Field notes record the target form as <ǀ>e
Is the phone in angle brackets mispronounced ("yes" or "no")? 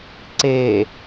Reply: no